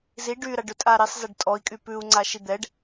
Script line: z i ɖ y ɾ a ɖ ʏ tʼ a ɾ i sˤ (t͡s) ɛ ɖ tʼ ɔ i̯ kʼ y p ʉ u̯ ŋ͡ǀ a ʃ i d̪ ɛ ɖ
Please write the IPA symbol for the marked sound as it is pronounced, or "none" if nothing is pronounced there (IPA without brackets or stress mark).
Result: z